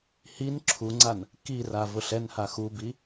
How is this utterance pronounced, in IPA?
h i n ǁʰ u ŋ͡ǀ a n | k i r a v ʊ ɬ ɛ n h a x u b i

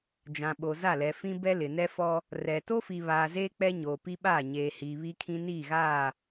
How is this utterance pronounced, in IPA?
d͡ʒ ã˨ ɓ o˨ z a˦˨ l ɛ˨ f ĩ˦ b ɛ˦ l ɪ˨ n ɛ˦ f ɔ˦ | r ɛ˨ t o˦ f i˨ β aː˨ z eː˦ k͡p ɛ˦ ɲ oː˨ p i˦ ɓ aː˦˨ ɲ eː˨ h iː˨ β i˦ kʰ ĩ˦ n iː˦˨ ɣ aː˦˨

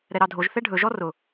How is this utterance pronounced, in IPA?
ɾ ɛ ɾ ɑ dʱ o ʒ θ ɛ ɖʱ ɵ ʒ ɔ r ʊ

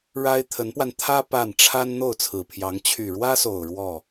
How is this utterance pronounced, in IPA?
ɻ a˥ ɪ̯ t̪ʰ ə˧˥ n p w a˧ n t̪ʰ ä˥ p a˥˩ n ʈ͡ʂʰ a˥ n n̪ o˥˩ ʊ̯ t͡sʰ ɹ̩˨˩ pʰ j ɑ˧˥ ŋ t͡ɕʰ y˨˩ ɻ w ä˥ s o˨˩ ʊ̯ ɻ w ɔ˥˩

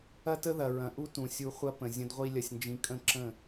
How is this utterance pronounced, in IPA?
ɐ˦ t ə˦ ð ɐ˨ ɹ ɐ̃˨ ʔ u˧ t ũ˨ sʲ u˧ χʷ ɐ˦ p ə̃˨ zʲ ə̃˧ d ʁʷ i˦ lʲ ɐ˧ sʲ n d͡ʒ ĩ˧ kʼ ə̃˦˨ ǁ ə̃˦˨

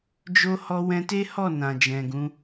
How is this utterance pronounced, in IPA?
d͡ʒ o˦ h ɔ˧ w ɛ̃˧ t e˦ h ɔ˦˨ n ã˨ d͡ʒ ɛ̃˨ ɡ ũ˨˦

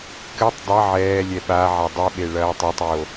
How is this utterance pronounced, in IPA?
k ɘ tˤ dˤ ɐ ʕ ɛː lʲ ɛ ɓ a ʕ a dˤ ɨ ɓ e ɭ ɐː tˤ ɛ tˤ j o

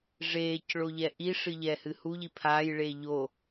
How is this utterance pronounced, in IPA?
ʐ eː c ɭ o ʎ ɛ ʔ i ʂ ɨ ʎ ɛː h ɨ h u ʎ i pʰ aː j ɭ eː ʎ o

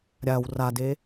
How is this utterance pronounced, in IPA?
ɾʲ a w r a d e

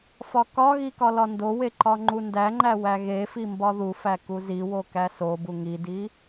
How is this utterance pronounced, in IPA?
f ɒ k ɒ ɣ i k ɒ l ɒ n d o w e ǃ ɒ ŋ͡ǃ u n d æ ŋ͡ǃ æ w æ ɣ e f i m b ɒ ð u f æ k u z i w o k æ s o b u ŋ i d i

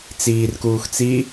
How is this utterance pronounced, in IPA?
t͡s iː r k uː x t͡s i

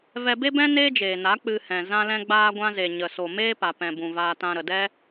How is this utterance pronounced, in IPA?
v ɛ˧ b e˦ b ɛ̃˦ n eː˦ d͡ʒ eː˨ n a˨˦ k͡p ɨ˧ h ɛ̃˨ z ã˧ l ɛ̃˧ ɡ͡b aː˧ ɡʷ ã˧ z e˨ ɲ ə˨ s o˨ m eː˦ p a˨ p ɛ̃˨ b ũ˨ v aː˧ t ã˧ ɾ ə˨ d ɛ˦

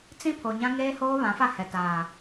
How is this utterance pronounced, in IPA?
t͡s ĩ˦ pʰ o˨ ɲ ã˦ ŋ eː˦ h oː˦ β ã˨˦ f a˦˨ h ɛ˨ t aː˨

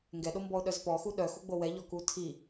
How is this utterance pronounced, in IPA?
ŋ ɡ ɛ ɗ o m b ɔ ʊ̯ ɗ œ z p ɔ x u ɗ œ x u ɡ͡b o w ɛ ʎ ɔ k u tʰ i

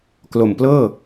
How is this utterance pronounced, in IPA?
k l o˨˩ m p l ɤː˥˩

